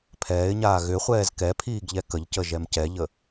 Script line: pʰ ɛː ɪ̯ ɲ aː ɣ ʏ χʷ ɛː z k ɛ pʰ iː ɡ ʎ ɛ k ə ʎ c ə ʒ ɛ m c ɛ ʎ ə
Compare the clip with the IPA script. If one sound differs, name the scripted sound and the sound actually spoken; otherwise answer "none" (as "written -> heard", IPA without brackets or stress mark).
none